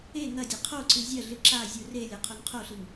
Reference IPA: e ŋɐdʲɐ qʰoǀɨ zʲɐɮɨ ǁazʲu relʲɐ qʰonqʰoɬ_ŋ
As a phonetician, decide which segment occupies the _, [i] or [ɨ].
i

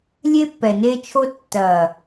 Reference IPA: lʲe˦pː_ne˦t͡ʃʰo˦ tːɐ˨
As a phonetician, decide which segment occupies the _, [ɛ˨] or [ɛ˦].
ɛ˨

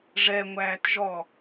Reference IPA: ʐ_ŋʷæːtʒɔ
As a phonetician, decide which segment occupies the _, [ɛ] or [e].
ɛ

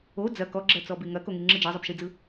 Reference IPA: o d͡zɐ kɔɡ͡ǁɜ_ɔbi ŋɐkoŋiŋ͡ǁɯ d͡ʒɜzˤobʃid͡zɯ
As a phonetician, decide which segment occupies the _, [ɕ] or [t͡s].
t͡s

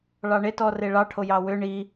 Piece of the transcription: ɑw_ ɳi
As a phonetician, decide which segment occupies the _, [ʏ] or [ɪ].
ʏ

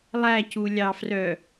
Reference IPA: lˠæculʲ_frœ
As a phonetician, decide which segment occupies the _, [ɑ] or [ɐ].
ɑ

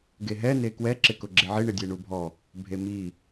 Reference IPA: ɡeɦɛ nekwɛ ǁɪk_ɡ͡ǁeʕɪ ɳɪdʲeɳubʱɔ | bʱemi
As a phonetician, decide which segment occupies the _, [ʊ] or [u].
ʊ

